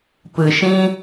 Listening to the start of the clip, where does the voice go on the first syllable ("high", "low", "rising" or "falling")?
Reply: low